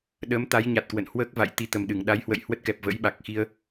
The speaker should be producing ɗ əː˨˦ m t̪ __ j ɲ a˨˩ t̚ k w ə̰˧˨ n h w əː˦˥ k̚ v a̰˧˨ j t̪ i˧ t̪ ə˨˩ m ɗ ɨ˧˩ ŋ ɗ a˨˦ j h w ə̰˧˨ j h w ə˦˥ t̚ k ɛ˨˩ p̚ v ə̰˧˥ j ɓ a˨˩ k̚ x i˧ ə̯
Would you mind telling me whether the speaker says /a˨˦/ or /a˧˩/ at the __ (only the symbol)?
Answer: a˨˦